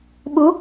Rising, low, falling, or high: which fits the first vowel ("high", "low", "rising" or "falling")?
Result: rising